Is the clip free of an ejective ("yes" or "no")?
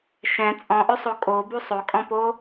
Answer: no